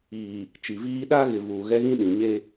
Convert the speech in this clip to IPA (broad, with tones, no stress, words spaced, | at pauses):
iː˨ | t͡ʃi˨viː˦ ɗa˦ɣɪ˨ vuː˨ɣɛ˦ɣĩ˦ ɗĩ˨ ɲe˦